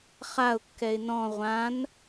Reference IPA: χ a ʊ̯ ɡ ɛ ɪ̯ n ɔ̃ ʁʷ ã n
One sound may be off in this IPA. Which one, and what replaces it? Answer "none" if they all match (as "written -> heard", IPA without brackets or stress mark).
ɡ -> kː